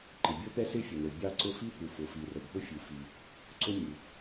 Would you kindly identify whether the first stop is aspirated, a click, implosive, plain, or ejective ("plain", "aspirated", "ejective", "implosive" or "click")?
click